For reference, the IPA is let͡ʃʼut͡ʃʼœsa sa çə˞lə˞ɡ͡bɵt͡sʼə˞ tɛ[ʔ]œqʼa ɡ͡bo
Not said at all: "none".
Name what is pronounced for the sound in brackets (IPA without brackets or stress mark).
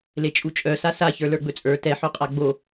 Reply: ħ